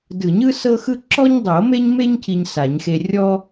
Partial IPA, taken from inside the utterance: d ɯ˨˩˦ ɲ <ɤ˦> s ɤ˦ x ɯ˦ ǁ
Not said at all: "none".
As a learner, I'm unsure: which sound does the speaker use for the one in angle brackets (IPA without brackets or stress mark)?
ɯ˦